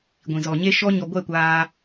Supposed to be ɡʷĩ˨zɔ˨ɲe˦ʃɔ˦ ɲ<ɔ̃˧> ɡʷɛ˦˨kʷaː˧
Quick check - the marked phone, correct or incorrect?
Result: incorrect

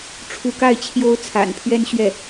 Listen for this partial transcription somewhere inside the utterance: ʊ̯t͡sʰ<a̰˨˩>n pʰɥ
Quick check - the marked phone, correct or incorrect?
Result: correct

